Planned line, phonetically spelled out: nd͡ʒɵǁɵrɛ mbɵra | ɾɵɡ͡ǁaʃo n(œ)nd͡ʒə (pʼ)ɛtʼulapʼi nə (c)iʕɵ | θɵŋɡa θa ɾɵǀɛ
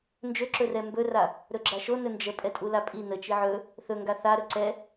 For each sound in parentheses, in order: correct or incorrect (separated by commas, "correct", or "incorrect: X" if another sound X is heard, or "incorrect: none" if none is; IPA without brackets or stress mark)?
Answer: incorrect: ɵ, correct, incorrect: t͡ʃ